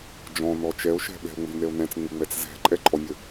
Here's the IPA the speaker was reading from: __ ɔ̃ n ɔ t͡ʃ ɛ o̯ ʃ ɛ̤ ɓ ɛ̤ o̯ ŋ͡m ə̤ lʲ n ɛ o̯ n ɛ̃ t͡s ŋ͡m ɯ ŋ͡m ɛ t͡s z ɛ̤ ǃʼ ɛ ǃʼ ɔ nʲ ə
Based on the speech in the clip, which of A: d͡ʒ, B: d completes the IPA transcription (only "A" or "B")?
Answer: A